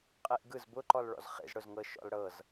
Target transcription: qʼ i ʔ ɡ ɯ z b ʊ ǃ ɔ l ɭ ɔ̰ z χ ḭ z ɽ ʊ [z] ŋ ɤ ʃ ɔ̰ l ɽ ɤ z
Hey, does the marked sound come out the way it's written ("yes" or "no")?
yes